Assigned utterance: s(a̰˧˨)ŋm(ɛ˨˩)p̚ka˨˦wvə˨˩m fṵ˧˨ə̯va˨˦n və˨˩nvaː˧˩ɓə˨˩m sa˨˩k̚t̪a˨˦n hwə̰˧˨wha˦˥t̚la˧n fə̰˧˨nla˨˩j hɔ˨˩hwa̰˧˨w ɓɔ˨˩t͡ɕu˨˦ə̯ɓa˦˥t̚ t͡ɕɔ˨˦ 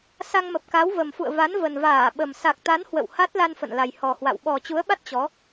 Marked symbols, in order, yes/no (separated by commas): no, no